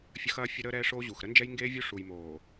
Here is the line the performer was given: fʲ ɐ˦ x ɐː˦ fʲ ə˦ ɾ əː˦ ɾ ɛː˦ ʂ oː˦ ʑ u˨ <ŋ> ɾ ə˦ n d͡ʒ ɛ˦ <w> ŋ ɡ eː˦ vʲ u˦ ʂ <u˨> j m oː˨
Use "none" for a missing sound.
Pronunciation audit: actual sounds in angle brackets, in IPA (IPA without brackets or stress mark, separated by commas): x, j, u˨